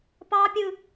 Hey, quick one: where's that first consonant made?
lips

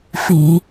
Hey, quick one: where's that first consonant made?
lips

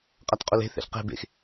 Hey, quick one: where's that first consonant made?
uvula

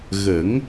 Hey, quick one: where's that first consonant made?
velum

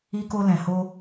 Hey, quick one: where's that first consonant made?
velum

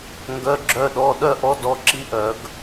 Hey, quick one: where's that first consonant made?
velum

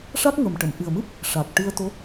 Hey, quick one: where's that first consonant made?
retroflex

